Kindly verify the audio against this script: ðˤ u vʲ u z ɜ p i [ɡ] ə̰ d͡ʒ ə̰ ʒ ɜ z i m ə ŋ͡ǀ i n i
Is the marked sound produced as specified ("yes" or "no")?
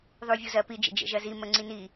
no